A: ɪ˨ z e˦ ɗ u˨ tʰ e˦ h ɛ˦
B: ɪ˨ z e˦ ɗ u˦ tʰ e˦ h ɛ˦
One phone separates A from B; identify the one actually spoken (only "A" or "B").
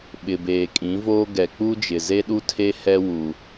B